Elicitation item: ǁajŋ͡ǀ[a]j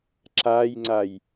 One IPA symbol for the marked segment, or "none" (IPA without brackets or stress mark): a